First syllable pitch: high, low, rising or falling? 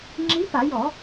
rising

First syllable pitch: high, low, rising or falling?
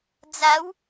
rising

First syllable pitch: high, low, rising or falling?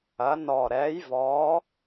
rising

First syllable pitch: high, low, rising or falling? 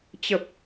low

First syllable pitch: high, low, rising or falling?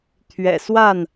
low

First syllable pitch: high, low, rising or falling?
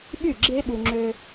falling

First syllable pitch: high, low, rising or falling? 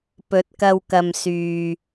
rising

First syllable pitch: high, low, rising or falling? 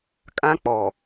high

